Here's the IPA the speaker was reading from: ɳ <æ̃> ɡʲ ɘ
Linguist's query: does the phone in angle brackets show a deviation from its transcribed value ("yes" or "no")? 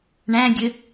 no